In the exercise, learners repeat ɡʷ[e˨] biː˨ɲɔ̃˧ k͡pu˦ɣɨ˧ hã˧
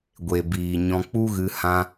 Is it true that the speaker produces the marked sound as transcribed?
yes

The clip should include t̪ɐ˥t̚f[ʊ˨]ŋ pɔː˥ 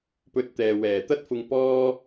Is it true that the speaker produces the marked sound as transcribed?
no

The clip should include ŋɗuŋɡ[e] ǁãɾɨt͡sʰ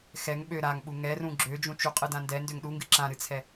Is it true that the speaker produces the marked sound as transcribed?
no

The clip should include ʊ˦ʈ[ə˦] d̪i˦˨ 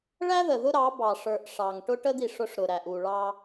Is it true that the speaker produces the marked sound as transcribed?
yes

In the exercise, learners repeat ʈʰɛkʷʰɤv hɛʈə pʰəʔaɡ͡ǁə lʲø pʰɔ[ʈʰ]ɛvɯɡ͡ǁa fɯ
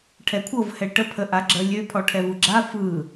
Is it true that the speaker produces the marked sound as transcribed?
yes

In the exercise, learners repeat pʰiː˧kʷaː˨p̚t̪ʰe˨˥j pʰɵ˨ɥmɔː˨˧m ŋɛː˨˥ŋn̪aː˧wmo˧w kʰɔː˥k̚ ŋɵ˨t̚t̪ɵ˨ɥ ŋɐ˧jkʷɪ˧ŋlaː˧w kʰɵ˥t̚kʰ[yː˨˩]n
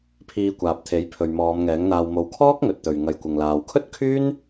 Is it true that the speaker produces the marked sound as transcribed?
no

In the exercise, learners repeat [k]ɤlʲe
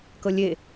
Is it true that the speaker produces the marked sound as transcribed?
yes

